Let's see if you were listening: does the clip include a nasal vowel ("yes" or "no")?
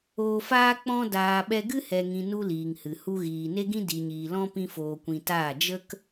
yes